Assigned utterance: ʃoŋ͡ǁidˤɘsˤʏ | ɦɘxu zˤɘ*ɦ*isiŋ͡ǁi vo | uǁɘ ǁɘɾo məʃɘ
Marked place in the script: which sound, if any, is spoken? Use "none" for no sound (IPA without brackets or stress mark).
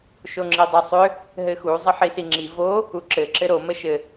ħ